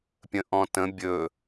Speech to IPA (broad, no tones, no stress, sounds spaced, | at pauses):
pʲ ə̃ ʔ ɔ̃ t ə̃ bʲ ɵ